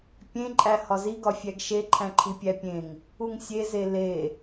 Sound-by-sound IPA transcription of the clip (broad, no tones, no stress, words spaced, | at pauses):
pʲẽǃʼæ hɒzi ɡɒfʲæɡʃe ǃʰæ̃ǃʰipʲæpʲẽŋ | uŋsʲeze le